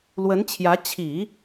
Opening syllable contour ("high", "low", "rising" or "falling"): rising